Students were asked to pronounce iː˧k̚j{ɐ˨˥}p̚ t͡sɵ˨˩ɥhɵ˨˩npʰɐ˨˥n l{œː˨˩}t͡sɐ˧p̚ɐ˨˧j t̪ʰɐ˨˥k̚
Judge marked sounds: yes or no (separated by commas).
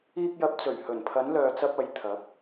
yes, no